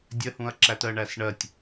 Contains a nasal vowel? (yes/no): yes